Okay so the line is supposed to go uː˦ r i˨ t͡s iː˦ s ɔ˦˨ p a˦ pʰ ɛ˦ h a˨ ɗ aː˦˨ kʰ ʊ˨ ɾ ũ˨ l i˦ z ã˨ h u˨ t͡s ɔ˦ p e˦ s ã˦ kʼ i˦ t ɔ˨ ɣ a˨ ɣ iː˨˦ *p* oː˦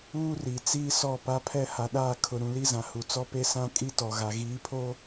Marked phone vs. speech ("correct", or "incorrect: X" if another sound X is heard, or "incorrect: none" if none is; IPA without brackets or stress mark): incorrect: pʰ